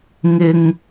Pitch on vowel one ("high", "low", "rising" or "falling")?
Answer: high